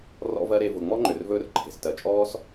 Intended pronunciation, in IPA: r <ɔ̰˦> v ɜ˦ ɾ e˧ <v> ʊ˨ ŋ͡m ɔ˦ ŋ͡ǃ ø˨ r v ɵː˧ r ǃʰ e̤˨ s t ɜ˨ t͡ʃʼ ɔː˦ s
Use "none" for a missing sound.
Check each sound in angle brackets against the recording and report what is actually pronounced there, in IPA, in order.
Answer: ɔ̰˦, v

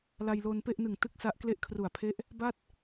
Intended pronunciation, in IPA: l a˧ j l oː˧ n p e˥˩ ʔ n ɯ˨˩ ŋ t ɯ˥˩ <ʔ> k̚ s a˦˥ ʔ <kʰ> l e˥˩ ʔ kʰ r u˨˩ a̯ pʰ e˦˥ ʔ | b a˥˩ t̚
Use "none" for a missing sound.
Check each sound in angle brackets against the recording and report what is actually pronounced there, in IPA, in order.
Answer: none, k

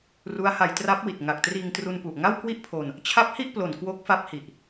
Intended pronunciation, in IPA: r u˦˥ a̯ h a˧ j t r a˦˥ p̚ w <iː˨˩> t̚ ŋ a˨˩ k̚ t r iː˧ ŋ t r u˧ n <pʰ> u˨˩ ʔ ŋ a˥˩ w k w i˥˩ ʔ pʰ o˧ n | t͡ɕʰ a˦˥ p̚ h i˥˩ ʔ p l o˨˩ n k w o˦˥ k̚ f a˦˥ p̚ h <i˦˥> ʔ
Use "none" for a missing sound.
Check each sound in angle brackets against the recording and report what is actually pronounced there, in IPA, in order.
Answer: i˨˩, p, i˨˩

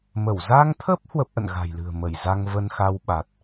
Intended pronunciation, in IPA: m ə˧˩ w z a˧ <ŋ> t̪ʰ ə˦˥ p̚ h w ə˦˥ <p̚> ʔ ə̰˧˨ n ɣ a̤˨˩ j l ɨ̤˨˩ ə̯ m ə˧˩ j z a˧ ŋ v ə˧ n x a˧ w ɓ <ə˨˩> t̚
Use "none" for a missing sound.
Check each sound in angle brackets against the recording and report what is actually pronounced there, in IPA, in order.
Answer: ŋ, p̚, a˨˩

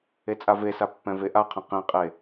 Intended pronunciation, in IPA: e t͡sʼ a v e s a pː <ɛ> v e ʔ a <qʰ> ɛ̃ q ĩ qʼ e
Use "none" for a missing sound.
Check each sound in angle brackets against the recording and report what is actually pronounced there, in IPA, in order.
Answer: ɛ̃, qʰ

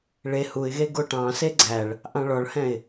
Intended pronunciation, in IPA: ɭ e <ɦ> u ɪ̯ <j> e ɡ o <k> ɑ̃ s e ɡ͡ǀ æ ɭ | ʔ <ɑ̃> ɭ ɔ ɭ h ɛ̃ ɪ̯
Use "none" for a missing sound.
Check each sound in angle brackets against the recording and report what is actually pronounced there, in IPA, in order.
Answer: h, ɣ, ʈ, ɑ̃

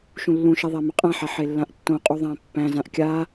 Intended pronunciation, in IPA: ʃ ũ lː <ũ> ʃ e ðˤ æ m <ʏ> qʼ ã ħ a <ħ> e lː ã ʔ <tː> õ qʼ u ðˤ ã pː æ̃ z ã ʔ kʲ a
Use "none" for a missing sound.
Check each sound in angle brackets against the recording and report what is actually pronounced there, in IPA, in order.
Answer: ũ, ʏ, ħ, tː

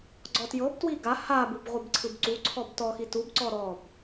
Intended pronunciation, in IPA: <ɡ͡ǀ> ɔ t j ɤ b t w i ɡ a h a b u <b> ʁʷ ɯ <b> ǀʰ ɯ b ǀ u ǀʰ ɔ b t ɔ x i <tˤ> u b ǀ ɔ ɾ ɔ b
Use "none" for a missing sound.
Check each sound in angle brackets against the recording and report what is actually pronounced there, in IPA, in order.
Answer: ɡ͡ǀ, b, b, t

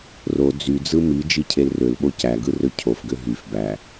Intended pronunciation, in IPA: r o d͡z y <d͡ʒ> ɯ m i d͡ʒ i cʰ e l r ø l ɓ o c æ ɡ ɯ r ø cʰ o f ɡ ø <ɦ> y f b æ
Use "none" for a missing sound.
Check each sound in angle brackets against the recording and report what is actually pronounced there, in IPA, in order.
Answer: d͡z, ɦ

